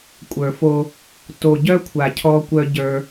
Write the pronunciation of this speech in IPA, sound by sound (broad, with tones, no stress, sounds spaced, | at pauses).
kʷʼ ə˞˨ f o˦ | t o˨ ɟ œ˦ kʷʰ a˨ cʰ ɔ˦ kʷ œ˦ ɟ ə˞˦